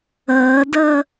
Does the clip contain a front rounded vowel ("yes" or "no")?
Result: no